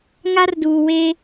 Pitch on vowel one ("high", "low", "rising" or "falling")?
high